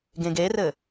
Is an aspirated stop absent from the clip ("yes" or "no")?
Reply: yes